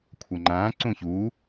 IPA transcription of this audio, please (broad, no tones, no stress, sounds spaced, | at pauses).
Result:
kʷʰ ʌ ŋ͡ǃ ãː ǀ ũ ç uː